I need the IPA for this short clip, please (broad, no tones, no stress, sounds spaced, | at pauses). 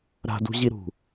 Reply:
ɾ a̤ d ṳ ʑ i ɾ ṳ